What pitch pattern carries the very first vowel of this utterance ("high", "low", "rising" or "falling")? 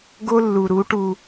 high